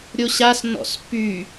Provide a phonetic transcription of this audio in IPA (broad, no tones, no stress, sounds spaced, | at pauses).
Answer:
ɾʲ o ɕ a s n ɔ̰ s p y